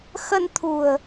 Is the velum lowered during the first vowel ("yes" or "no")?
no